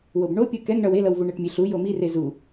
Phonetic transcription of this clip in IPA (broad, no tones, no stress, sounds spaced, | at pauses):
w o b ɳ o pʲ u k ɛ ŋ ɳ ʌ w e l ʌ w v u ɳ ɛ ʈ mʲ e ɬ u j o m i r e z u